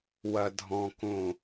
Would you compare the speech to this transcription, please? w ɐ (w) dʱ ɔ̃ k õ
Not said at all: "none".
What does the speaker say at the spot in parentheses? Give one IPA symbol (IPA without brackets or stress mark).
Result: none